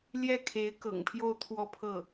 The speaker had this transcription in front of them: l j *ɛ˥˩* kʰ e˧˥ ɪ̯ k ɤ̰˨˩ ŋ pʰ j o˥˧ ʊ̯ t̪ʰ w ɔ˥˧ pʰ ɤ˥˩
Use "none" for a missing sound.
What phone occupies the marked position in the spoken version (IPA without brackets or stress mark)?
ɛ˥˩